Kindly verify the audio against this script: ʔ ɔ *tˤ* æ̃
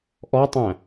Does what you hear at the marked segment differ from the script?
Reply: no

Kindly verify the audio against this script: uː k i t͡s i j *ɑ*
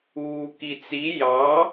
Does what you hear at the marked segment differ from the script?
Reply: no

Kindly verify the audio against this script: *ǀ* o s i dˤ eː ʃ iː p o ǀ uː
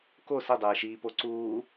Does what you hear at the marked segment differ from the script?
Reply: yes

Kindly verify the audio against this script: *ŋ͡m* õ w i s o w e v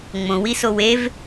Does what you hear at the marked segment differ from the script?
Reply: no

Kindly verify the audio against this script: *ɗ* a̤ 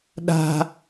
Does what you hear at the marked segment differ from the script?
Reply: no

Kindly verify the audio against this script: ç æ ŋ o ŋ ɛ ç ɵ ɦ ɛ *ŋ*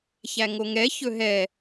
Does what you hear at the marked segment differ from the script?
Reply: yes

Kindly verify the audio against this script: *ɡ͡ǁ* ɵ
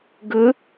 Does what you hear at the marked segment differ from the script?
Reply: yes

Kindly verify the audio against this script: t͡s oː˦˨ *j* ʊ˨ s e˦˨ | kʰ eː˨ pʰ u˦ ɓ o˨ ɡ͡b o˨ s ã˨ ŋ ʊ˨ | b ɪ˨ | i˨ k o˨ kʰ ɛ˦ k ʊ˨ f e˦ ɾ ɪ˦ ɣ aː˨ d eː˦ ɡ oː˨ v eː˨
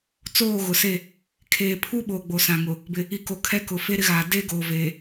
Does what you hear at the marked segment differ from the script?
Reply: yes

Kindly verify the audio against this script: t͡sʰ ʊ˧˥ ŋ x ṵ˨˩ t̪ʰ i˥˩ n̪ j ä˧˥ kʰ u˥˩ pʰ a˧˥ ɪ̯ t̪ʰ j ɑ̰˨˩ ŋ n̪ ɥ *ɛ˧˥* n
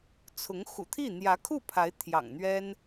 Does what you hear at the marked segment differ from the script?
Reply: yes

